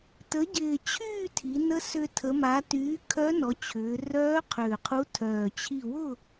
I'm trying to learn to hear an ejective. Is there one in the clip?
no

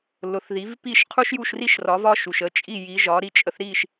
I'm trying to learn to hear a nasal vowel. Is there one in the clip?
no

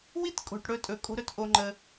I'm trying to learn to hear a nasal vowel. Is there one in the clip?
no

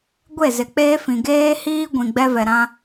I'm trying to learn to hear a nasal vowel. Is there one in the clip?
yes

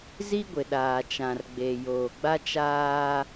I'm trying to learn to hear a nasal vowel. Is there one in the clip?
yes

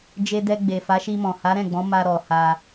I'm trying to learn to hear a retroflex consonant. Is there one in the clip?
no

